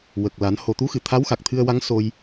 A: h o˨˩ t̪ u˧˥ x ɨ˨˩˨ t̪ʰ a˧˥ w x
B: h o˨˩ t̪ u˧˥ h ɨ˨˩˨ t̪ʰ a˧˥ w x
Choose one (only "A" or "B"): A